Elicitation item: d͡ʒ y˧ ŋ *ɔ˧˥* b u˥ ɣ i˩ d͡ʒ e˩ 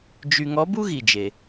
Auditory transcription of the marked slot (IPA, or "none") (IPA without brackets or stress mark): ɔ˧˥